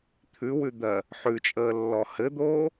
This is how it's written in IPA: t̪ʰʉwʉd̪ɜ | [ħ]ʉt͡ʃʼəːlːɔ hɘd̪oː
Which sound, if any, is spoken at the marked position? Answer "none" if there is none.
ħ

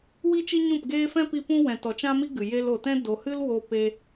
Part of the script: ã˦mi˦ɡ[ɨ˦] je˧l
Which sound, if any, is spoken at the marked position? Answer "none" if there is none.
ɨ˨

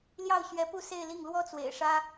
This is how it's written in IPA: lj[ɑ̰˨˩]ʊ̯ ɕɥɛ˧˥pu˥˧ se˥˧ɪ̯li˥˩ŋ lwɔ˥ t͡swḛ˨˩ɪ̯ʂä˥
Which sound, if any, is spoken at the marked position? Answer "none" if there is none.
ɑ˥˩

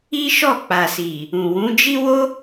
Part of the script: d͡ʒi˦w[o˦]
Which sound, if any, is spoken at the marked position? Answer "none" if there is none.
o˦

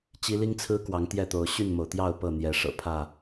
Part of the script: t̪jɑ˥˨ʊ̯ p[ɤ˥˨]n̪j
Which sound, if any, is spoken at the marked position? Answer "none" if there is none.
ɤ˥˨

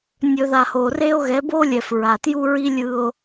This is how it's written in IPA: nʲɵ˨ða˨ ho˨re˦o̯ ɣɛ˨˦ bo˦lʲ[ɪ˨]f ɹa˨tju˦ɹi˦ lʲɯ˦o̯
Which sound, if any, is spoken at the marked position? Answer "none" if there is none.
ɛ˨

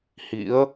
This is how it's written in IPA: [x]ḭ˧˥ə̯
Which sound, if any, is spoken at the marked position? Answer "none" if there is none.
h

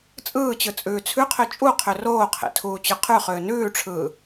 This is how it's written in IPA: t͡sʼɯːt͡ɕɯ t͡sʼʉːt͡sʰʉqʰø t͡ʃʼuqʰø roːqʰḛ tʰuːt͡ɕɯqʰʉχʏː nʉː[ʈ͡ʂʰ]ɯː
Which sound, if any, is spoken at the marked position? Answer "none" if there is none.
ʈ͡ʂʰ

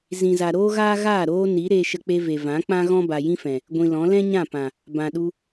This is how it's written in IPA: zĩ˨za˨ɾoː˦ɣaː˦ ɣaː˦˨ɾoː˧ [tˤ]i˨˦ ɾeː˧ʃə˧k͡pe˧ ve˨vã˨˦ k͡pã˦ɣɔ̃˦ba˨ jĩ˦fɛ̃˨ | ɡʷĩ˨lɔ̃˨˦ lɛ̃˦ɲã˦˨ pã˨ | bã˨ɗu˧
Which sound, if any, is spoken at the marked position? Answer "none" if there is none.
n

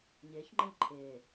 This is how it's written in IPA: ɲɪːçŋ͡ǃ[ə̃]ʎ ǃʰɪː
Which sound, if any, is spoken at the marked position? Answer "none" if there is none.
ə̃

